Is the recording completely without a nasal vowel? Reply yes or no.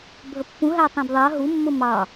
no